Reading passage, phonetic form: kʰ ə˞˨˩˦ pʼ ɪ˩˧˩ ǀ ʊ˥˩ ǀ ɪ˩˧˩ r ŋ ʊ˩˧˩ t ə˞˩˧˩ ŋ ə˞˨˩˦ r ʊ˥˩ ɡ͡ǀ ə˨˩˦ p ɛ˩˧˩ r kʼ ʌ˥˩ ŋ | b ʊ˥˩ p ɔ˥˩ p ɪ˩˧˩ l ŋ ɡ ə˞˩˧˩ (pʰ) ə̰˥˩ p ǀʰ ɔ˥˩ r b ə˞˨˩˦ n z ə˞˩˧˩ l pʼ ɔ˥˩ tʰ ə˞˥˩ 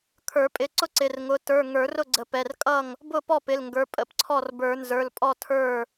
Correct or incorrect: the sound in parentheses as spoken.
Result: incorrect: pʼ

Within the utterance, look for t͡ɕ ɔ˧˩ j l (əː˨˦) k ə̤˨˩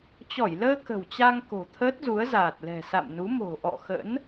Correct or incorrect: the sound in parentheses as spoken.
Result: incorrect: əː˧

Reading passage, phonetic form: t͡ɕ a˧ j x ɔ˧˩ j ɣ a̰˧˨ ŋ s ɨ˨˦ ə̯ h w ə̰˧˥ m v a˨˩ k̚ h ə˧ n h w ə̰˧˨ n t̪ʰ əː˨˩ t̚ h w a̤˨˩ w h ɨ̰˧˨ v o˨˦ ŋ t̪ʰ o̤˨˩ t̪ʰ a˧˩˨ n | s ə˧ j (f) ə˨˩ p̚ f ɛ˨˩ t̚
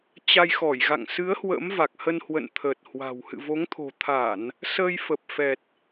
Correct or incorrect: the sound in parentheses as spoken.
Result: correct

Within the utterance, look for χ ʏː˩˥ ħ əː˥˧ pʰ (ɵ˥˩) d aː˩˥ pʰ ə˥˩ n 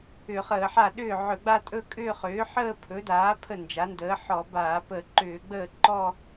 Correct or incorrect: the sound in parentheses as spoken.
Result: incorrect: ɵ˩˥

